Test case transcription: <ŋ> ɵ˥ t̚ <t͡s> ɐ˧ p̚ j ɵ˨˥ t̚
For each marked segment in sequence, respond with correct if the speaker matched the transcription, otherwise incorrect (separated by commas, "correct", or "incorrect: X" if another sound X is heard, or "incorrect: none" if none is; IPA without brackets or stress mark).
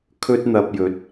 incorrect: kʰ, incorrect: n̪